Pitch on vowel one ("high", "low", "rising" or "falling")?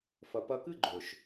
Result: low